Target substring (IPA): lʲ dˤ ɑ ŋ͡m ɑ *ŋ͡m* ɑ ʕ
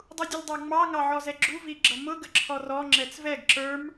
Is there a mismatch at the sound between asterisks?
yes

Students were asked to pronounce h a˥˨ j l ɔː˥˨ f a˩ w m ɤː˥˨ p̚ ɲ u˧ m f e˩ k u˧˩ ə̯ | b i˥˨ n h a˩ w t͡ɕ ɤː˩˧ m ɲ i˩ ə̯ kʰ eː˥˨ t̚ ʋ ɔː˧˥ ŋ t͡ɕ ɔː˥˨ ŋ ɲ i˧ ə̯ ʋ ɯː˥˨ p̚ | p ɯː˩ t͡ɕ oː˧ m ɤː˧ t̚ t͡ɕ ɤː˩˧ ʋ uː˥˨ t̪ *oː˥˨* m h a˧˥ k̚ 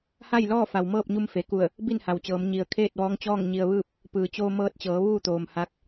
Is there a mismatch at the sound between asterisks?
yes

